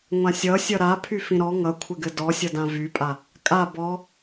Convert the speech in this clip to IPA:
ŋʷ ã sʲ ʌ sʲ ʌ ɾ a pʰ y f ĩ ɾ ɔ ŋ ʌ kʷʰ ɘ ɡ ɘ d ɔ sʲ ʌ d ã v y pʼ a | kʼ a b ɔ

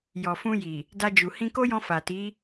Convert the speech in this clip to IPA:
j ɔ˨ f ũ˧ j i˨ | d a˧ d͡ʒ u˨ h ĩ˧ k o˦ j ɔ̃˧ f a˨ t i˨˦

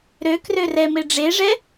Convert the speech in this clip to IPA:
ɾ ø k r ø r ɛ m e ɖ͡ʐ e ʐ ɛ

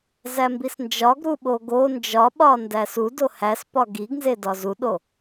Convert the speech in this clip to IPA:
z æ m b i s n d͡ʒ ɒ ɡ ɾ u ɓ o ɡ o n d͡ʒ ɒ ɓ ɒ n d æ s u d o h æ s p ɒ ɡ i ɡ n z e d ɒ z u ɗ o

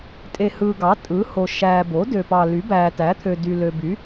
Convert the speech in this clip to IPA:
tʼ e˨ h ɯː˨ ɡ ɑ˩˥ tʼ ɯː˩˥ h o˨ ʃ æː˨ b o˩˥ d ø˨ p ɑ˨ l y˩˥ b æː˨ t æ˩˥ t̪ʰ ø˨ d y˨ l ø˨ b y˩˥

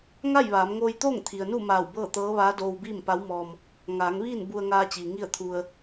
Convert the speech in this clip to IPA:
ŋ a˥˨ j ʋ aː˩˧ m ŋ oː˧ j t̪ oː˥˨ ŋ t̪ʰ i˩ ə̯ n u˥˨ m aː˧˩ w b ɤː˥˨ t̪ ɤː˧˥ ʋ aː˧˥ d oː˧ w b iː˥˨ m p a˧˥ w m ɔː˧ m | ŋ aː˩˧ ŋ ʋ iː˥˨ n b u˧ ə̯ ŋ aː˧ t͡ɕ iː˩ ŋ i˥˨ ə̯ t̪ʰ u˧ ə̯

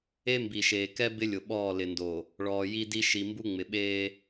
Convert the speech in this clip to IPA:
e˦ m b i˨ ʃ eː˨ k ɛ˦ b ɪ˦ lʲ ʊ˨ ɓ ɔː˦˨ l ɪ˨ n d o˨ | ɭ ɔː˨ j i˦ d i˦ ʃ i˨ m b u˦ ŋ͡m ɪ˨ ɓ eː˦

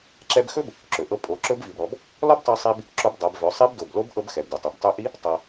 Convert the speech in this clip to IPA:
ǁ ɛ˧ b x ɵ˥ b | ǁ ɵ˩ ʔ ɤ˧ pʼ o˩˧ ǁ ɵ˧˥ b v i˩ b ɾ ɔ˩˧ b | l ɔ˥ b tˤ ɤ˧ sˤ i˧ b | ǁ o˧ b dˤ ɤ˩˧ b v ɵ˩˧ sˤ i˧˥ b d o˩ b l o˧˥ b ʔ ɤ˧ b x ɛ˩ b d ɵ˩ tˤ i˩ b tˤ ɵ˧ ʔ i˧˥ | tˤ ɤ˩

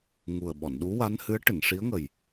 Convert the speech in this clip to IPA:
ŋ u˨˩ ə̯ ɓ ɔ˨˩˨ n ɗ u˧˥ w a˧˥ n h ɨ˧˥ ə̯ ʈ ɨ˨˩˨ n ʂ i˧˥ ə̯ ŋ ə˨˩ j

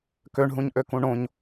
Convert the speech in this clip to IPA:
k ø ɳ ɦ ũ ɲ ʔ ø k ũ ɳ õ ɲ

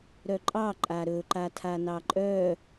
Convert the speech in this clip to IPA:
ɾ œ ǃʼ ɑ ǃʼ a ɾ ɵ ǃ a tʰ a n ɑ ǃʼ œ

